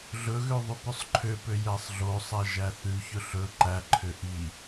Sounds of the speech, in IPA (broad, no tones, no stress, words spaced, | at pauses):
ɮɵɣø ðˤʉpɵsˤǃʰøpø jæsˤɮosˤæ ʒæθʉçɵ ɬɵ ǃæǃʰø ʔi